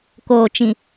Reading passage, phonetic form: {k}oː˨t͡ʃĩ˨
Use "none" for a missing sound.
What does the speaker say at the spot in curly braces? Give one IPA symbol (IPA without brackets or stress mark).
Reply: k